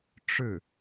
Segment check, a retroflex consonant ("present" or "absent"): present